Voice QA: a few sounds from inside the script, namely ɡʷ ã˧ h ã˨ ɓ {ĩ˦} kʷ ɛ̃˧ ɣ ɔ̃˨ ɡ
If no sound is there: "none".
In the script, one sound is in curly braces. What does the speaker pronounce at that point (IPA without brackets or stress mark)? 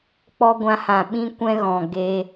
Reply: ĩ˧